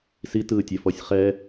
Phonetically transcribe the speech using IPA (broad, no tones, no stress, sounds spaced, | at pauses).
s i t ɯː tʲ ɛ f ɔ sʲ χ ɛ